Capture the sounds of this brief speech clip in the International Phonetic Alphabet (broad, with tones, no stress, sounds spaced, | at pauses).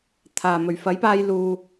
t̪ʰ aː˨˩ m ɵ˨˩ ɥ f ɐ˨˥ j p aː˧ j l uː˨